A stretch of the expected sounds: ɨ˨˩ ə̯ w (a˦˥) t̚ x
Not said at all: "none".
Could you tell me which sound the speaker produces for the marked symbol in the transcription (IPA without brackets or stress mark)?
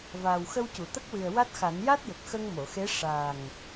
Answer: a˦˥